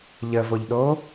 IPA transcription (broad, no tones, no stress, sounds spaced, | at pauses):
ʎ ə v o ʎ ɗ oː